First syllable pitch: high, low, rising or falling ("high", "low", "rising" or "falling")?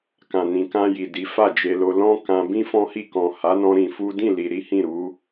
low